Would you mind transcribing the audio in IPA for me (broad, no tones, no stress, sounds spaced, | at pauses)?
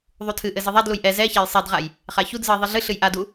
ðˤ u tʰ ɨ ʔ ɘ z ɨ ðˤ a d l u j ʔ ɛ z ɛ ç a j sˤ e d ʁ a j | χ a ç u d z ɨ i̯ ðˤ e ɮ ɨ ɬ ɨ j ʔ a d u